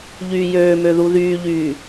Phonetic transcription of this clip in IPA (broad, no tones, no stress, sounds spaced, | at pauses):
ʎ yː j øː m ø ð u ð yː ʎ yː